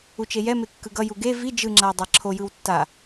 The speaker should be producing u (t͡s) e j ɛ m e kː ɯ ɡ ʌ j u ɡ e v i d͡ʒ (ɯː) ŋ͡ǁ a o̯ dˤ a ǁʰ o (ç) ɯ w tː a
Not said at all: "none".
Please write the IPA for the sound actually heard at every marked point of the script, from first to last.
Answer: t͡ʃ, ɯ, j

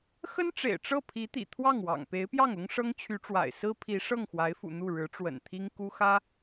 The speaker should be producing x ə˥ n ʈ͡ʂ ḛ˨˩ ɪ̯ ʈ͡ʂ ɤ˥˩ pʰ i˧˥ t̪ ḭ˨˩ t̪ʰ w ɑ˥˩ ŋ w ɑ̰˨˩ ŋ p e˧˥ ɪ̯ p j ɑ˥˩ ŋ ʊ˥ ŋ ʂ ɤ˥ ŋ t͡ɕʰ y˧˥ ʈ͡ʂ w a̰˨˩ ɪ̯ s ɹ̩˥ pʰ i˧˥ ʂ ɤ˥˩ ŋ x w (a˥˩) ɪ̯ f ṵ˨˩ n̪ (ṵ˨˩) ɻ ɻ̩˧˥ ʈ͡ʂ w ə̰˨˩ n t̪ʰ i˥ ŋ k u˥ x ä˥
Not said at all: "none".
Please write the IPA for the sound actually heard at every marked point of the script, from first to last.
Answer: a˧˥, u˥˩

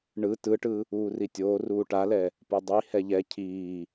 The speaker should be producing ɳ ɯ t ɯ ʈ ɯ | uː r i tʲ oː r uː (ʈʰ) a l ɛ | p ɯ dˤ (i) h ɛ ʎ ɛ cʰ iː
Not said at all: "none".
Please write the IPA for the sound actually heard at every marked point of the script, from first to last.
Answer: ʈ, i

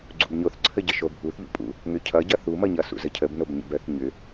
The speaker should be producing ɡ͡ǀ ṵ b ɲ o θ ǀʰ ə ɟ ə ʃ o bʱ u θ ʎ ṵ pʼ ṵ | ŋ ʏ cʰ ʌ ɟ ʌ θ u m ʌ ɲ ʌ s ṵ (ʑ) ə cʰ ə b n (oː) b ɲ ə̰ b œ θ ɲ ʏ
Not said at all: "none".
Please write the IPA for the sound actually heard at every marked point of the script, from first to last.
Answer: z, o

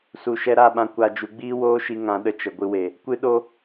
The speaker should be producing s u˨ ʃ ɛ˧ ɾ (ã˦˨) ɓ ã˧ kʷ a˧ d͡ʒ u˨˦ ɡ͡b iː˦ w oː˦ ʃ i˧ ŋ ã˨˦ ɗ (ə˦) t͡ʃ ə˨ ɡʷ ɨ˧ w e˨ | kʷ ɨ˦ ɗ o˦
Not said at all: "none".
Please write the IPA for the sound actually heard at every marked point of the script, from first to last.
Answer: a˦˨, ə˧

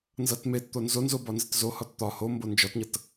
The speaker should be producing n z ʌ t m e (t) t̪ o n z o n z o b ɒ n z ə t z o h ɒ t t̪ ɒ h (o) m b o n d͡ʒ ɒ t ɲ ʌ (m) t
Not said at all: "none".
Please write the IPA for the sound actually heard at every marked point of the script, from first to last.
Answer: t, o, none

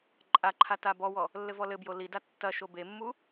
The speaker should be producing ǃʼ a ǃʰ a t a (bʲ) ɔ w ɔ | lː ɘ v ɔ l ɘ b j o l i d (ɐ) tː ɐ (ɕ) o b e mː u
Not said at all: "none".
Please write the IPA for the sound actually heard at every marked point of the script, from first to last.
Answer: b, a, ʃ

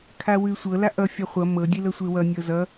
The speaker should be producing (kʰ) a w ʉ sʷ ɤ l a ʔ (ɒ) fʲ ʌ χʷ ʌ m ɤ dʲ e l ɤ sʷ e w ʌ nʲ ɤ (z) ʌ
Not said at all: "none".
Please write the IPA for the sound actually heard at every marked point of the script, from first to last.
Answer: kʰ, ʌ, z

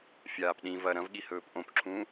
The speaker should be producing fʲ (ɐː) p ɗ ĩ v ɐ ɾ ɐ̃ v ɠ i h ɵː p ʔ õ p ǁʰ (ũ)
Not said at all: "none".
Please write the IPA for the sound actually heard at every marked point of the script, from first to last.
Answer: aː, ũː

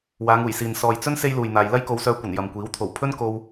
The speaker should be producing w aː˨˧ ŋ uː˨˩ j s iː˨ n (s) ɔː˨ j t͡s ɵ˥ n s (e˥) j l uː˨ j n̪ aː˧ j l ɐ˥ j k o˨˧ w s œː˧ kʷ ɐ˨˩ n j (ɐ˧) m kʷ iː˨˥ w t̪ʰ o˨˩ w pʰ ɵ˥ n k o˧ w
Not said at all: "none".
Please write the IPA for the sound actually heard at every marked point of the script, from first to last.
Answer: s, e˥, ɐ˨

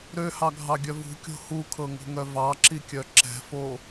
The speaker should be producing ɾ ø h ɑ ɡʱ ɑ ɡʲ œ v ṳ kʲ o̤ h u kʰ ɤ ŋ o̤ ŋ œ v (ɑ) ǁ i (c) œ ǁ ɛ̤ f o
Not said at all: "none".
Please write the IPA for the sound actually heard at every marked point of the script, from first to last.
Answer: ɑ, kʲ

